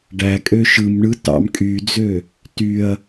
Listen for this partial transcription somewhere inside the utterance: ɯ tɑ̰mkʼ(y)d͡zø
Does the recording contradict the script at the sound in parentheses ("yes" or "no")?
no